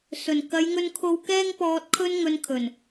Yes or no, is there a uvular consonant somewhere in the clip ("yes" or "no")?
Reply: no